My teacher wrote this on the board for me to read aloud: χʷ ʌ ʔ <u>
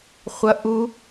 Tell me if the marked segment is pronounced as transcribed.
yes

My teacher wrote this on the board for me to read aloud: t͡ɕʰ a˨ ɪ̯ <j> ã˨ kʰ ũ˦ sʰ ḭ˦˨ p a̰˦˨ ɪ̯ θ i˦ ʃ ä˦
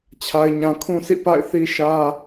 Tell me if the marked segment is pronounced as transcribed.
no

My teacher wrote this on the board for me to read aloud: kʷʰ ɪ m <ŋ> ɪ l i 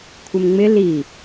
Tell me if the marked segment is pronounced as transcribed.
no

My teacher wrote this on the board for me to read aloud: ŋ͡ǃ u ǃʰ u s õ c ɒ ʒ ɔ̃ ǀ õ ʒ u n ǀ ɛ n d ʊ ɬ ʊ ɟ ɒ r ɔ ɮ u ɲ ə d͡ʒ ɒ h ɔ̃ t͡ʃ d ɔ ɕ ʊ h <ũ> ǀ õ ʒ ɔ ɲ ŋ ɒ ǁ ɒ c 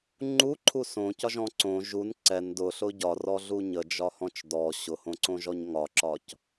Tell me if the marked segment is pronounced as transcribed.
no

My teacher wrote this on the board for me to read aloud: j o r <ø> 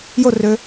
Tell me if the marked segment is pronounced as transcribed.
yes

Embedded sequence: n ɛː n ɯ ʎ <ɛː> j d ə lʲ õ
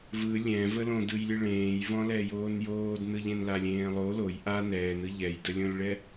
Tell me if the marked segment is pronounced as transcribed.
no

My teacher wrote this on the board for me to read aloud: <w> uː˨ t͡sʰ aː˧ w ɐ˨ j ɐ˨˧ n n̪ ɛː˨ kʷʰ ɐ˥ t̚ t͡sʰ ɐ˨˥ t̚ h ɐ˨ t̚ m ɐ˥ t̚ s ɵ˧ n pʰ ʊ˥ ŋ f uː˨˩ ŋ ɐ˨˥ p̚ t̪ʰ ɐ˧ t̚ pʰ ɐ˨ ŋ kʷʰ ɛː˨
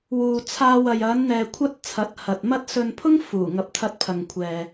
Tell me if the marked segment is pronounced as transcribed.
yes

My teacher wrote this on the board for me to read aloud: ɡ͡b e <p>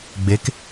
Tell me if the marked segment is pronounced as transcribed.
no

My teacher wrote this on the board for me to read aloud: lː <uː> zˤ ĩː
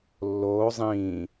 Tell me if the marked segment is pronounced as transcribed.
no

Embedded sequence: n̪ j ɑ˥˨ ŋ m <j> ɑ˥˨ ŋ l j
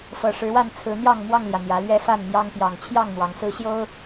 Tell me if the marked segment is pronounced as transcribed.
no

